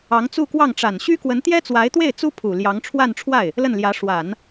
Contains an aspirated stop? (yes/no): yes